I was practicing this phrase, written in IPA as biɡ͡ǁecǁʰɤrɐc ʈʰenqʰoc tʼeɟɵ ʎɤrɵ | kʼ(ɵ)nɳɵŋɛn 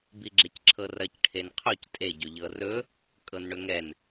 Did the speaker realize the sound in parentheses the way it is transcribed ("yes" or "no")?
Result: no